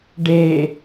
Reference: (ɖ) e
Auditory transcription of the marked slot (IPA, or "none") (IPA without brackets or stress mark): ɖ